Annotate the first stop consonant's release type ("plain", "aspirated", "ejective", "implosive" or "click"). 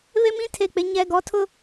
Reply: aspirated